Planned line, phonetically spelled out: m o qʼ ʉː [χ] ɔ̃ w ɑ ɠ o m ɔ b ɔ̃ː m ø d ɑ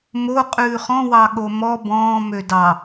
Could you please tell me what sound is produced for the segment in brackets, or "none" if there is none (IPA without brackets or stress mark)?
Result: χ